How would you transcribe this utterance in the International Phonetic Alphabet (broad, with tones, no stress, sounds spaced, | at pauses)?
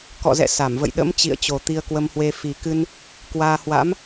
k ɔ̰˧˨ z ɛ̰˧˨ s a˧˩ m v ə̰˧˨ j ɗ ə̰˧˥ m t͡ɕ ḭ˧˨ ə̯ t͡ɕ o˨˩ t̪ i˧ ə̯ k w ə˧ m h w e˧ f i˨˩ k ɨ˧ n | k w aː˧ h w a̰˧˥ m